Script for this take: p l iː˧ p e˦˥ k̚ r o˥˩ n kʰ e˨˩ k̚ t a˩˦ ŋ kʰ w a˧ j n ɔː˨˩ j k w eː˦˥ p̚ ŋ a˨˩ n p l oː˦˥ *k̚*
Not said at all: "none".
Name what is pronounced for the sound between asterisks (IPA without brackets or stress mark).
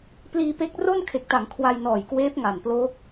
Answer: k̚